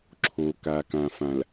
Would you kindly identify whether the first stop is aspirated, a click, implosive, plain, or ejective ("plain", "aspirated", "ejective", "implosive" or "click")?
click